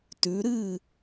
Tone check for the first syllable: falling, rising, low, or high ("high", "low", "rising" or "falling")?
rising